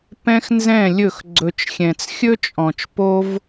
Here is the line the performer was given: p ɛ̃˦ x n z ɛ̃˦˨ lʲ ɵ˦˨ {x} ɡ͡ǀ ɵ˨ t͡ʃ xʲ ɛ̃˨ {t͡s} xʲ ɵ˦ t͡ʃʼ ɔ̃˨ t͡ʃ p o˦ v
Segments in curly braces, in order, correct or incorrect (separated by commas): correct, correct